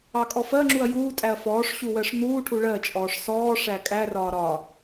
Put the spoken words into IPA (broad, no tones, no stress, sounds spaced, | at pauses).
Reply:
ɑ kʼ ɔ f ɜ ŋ͡ǁ u ɐ̯ j uː tʼ æ ɐ̯ f ɔː ʂ ɕ u w ɜ ʂ n̪ uː ʈʰ u ɭ ɜ t͡ʃʼ ɔː ʂ s ɔː ʂ æ kʼ æ r ɒː ɾ ɒ